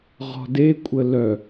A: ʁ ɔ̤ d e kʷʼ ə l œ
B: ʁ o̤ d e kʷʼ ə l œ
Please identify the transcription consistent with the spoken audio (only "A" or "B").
A